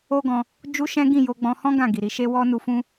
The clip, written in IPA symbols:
o˦ ɡ ɔ̃˧ | d͡ʒ u˦ ʃ ɛ̃˦ ɡ ĩ˦˨ j o˧ ɡ͡b ɔ̃˧ h ɔ̃˦ ɡ ã˦˨ ɡ i˨ ɾ i˨˦ ʃ e˦ w ɔ˦ n u˧ f ũ˦

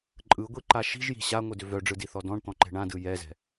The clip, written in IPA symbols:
ǃʼ ɯ ɡʷ i ǃ a ʃ i̤ ʒ j i̤ ɕ a ŋʷ ɯ d ʏ v œ ɖ͡ʐ ɯ d i θ ɔ d ɔ̃ ɳ t̪ ɔ̃ ǃ ɛ̤ ɳ ã d ɯ j ɛ z ɛ̤

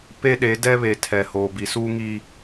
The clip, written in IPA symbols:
p e˦ ɗ e˨˦ d ɛ˦ β e˨ tʰ ɛ˨ h oː˨ b i˨ s uː˦ ŋ i˦

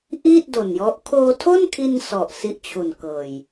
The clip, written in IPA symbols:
ʔ iː˥˩ t̚ d o˨˩ n j ɔ˦˥ ʔ kʰ oː˧ tʰ o˥˩ n kʰ i˧ n s ɔ˨˩ ʔ s i˦˥ ʔ t͡ɕʰ u˨˩ n k ɤː˨˩ j

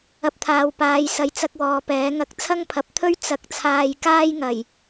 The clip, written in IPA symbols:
ɐ˧ p̚ t̪ʰ aː˨ w p aː˨˧ j s ɐ˨ j t͡s ɐ˧ k̚ w ɔː˨ p ɛː˨˥ ŋ ɐ˧ k̚ t͡sʰ ɐ˥ ŋ pʰ ɐ˨ p̚ t̪ʰ ɵ˥ ɥ t͡s ɐ˨ k̚ t͡sʰ aː˨ j k aː˥ j ŋ ɐ˨˩ j

